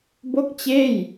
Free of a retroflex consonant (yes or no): yes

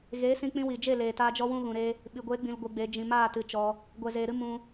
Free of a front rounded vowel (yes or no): yes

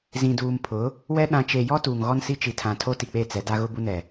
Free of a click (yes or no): yes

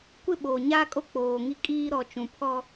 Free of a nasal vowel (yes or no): no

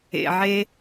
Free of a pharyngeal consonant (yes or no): no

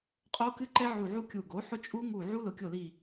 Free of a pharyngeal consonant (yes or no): no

